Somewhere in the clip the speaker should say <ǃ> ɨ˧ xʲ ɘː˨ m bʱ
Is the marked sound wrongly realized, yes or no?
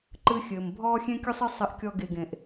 no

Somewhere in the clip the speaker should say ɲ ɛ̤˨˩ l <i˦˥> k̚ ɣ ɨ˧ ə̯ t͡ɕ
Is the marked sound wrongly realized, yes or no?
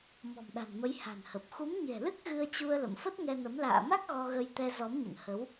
yes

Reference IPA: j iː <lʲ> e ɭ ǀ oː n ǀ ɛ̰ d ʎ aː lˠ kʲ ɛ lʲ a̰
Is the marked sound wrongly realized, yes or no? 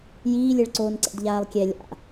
no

